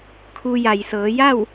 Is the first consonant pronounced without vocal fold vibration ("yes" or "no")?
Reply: yes